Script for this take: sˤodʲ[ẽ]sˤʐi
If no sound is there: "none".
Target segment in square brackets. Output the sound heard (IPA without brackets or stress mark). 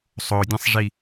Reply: ẽ